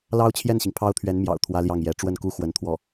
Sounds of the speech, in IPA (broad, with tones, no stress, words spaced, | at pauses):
lɑ˥ʊ̯t͡ɕʰjɛ˥˩nɕi˩ŋ pʰɑ˥ʊ̯t̪ʰɥɛ˧˥nmjɑ̰˨˩ʊ̯ t̪ʰwä˥ljɑ˥˩ŋjɛ˧˥ ʈ͡ʂwə˥˩nku˥xwə˧˥nt̪ʰwɔ˥˩